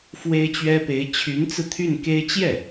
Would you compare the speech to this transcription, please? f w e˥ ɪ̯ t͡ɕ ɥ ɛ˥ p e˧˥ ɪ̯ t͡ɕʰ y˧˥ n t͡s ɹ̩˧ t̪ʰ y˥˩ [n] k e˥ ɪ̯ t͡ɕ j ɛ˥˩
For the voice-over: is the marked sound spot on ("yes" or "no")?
yes